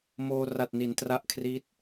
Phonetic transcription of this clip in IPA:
moː˧ ra˨˩t̚ni˩˦n tra˦˥ʔkʰri˦˥t̚

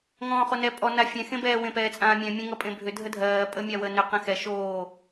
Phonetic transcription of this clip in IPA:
ŋɔ̃ːχonɛ pʼɔ nafʲɛ̃ xẽbɛː wẽpɛːt͡sʼãːmʲɛ̃ mʲɛ̃ŋʌpʼẽbʱʏ dʱədʱɜː pʼəmʲawə nʏ qɛ̃xɛ ʃoː

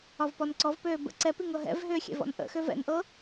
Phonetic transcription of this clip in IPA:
ɒvpɔnǀɔvpøː bə̰ ǀɛpiŋɤ ɦɛ̰vɦʏːxʲɛ̰vɔ̰n ʔə̰xøv ɛ̰nʔɤ

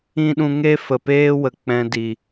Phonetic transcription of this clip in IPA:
ĩ˦ɗũ˧ ŋe˦fə˨peː˦wə˨ k͡pɛ̃˧ di˨

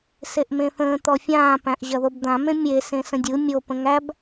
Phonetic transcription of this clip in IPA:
seʔmẽθə̃ː t̪ɔfʲãː pæ̃ʔʑɐðobd̪ã mẽmʲe sẽsə̃dʲɯ mʲo pə̃ŋæb

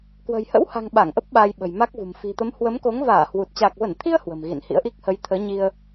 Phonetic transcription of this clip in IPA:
kwə̤˨˩jhə̰˧˥wha̤˨˩ŋ ɓa˧˩ŋʔə˦˥p̚ ɓaː˧jɓə̤˨˩jma˦˥k̚vṳ˨˩m fi̤˨˩t̪ə˨˦m hwə˨˦mko˨˦ŋ vaː˧˩hwu˨˩t̚ t͡ɕa˨˩k̚və˧˩nt̪ʰi˧ə̯ hwə̤˨˩m ɣḭ˧˨nhḭ˧˥ə̯ʔi˦˥k̚ hə˨˦jt̪ʰəː˨˦ɲi˧ə̯

